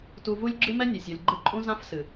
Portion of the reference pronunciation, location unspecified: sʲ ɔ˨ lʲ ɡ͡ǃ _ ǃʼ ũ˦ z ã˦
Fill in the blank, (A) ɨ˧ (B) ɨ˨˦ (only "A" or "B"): A